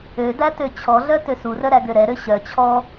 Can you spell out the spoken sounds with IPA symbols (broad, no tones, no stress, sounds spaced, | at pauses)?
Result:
ø d æ t ø t͡ɕʰ ɔ ɮ œ t ø s u r œ ɾ æ ɡ ø ɾ ɛ ɾ ø ɕ œ t͡ɕʰ ɔ